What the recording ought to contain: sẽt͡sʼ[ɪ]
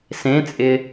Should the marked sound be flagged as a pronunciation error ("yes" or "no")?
no